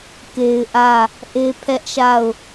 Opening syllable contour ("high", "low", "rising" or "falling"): high